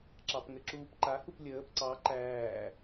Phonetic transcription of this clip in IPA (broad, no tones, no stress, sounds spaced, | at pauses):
ǁ ɑ p ŋ ɘ ǁ uː p ǃ a h u p lʲ əː p ǀ ɑ ǃ æː